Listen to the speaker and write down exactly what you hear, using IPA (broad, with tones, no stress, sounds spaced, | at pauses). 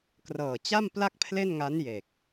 k r ɤː˨˩ t͡ɕ a˥˩ m p l a˥˩ k̚ pʰ l e˥˩ n ŋ a˦˥ n j e˨˩ k̚